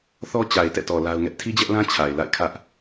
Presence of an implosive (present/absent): absent